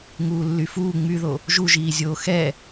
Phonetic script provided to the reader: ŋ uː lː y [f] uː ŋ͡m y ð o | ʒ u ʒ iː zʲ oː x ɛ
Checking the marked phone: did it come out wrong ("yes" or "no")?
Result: no